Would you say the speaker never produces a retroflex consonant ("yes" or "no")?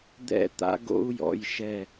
yes